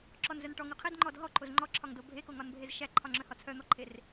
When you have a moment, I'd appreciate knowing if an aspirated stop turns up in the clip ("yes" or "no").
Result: yes